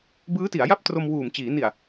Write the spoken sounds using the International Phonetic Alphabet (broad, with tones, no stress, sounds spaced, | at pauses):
b ɯː˦˥ t i˩˦ a̯ j a˥˩ p̚ t r o˧ m w uː˨˩ m t͡ɕ iː˩˦ n i˨˩ a̯